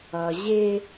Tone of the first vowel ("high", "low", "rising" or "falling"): low